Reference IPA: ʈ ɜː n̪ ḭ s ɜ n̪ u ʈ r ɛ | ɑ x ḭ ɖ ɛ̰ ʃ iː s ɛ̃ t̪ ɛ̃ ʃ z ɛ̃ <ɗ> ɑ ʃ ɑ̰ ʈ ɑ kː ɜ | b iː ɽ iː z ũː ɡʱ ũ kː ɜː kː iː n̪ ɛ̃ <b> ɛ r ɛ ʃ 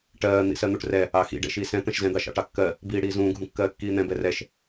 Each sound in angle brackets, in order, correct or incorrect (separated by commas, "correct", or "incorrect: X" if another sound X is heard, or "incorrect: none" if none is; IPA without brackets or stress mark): incorrect: d̪, correct